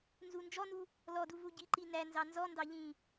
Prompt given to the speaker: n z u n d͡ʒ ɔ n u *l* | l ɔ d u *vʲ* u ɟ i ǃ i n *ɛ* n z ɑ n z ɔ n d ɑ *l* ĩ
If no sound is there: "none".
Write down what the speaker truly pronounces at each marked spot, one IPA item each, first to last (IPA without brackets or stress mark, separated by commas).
none, v, æ, ʎ